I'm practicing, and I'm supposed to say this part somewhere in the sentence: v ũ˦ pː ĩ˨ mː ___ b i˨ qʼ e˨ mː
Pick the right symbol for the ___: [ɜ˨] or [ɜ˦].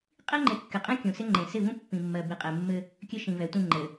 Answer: ɜ˨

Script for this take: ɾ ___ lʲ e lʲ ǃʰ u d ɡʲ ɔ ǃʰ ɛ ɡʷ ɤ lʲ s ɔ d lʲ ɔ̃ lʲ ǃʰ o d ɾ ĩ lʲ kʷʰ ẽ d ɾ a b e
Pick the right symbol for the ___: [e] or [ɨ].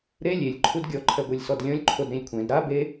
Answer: e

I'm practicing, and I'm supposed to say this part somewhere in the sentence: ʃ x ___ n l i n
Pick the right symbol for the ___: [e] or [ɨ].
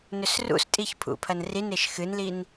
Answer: ɨ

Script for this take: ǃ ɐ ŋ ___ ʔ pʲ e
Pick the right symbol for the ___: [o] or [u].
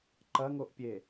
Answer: o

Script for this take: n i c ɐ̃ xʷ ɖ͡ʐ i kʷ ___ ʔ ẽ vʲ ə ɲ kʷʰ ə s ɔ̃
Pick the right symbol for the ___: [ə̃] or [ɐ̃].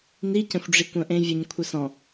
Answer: ɐ̃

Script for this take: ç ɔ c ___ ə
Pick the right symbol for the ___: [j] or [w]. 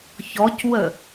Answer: w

